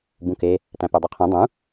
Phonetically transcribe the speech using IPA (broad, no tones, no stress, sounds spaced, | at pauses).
b ũ k e | t æ̃ p ø dˤ ɯ qʰ ĩ dˤ ũ